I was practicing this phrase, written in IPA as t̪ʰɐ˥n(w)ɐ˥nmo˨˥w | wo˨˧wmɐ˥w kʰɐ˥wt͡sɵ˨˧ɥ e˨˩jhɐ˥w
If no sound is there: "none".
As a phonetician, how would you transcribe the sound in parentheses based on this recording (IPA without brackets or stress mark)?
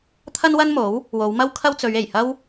w